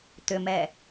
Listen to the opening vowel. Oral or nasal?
oral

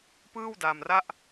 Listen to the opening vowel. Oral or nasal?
oral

